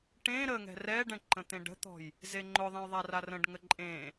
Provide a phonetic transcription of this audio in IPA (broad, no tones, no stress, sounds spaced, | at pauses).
ʈ ẽ ɾ ə ŋ ɛ̤ r ɛ ɖ ɛ̃ ǃ ə̃ t̪ ẽ ɖ ə̤ t̪ ɔ̤ j | z e ŋ͡ǃ ʊ ðˤ ɛ̃ j ðˤ a r a r ə̃ ɖ ŋ ə ǃʼ ẽ